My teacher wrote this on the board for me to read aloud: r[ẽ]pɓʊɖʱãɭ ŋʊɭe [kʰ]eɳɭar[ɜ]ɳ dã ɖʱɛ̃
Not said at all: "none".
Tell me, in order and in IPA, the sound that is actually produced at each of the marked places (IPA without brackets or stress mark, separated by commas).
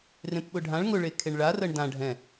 ẽ, kʰ, ɜ